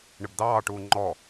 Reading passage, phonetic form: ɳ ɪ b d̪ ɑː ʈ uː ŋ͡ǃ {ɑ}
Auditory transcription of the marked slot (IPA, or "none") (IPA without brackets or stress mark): ɔ